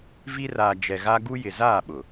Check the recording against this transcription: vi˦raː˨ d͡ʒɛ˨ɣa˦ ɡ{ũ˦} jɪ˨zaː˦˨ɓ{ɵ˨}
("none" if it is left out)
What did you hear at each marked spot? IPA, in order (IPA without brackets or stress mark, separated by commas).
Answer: u˦, ʊ˨